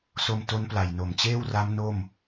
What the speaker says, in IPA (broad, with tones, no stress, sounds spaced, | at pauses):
s o˧ m t o˦˥ n p l a˨˩ j n o˨˩ m t͡ɕ eː˥˩ w r a˦˥ m n o˥˩ m